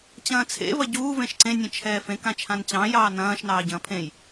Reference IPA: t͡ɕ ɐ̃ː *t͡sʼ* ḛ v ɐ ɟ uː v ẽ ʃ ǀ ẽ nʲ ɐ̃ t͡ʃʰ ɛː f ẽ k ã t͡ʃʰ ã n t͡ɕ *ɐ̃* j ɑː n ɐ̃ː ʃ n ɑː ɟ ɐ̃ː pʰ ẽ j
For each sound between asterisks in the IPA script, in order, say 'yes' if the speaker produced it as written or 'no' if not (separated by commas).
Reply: no, no